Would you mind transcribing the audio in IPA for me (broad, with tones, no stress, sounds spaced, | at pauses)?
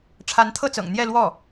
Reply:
ʈ͡ʂʰ a˧˥ n t̪ʰ ɤ˥˩ t͡s ɤ̰˨˩ ŋ n̪ j ɛ˥˧ l w ɔ˥˩